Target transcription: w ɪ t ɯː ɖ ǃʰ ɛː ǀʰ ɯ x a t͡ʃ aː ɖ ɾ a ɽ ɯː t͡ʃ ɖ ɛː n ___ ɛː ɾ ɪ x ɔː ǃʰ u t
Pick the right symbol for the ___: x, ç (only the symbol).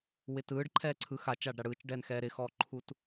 x